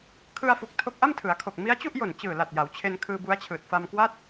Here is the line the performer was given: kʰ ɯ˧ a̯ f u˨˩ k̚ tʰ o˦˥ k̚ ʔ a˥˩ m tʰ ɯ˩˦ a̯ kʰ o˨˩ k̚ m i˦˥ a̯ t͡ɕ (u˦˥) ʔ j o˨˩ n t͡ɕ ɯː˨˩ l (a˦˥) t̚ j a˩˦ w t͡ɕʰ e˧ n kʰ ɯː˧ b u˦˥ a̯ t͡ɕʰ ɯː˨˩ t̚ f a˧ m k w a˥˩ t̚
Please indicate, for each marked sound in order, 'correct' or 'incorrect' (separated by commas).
incorrect, incorrect